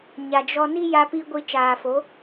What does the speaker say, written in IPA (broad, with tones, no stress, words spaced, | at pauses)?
ɲa˨d͡ʒɔ˧ ni˦ja˧pi˧ ɡʷi˧ t͡ʃaː˨fo˨˦